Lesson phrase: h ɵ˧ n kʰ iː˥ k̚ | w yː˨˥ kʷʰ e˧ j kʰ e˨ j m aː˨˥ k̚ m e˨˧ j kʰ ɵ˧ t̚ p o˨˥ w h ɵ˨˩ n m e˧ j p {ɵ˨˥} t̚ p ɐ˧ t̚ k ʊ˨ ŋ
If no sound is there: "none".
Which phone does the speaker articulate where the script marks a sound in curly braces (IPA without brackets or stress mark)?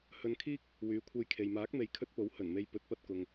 ɵ˨˥